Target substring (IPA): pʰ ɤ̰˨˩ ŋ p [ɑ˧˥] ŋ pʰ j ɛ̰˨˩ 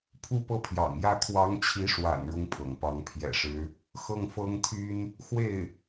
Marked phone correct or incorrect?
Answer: correct